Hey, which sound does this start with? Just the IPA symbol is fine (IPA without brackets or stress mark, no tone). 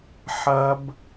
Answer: ħ